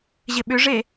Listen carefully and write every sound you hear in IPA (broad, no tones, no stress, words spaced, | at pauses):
ʑɪɓʏʐe